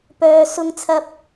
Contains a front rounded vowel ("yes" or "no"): yes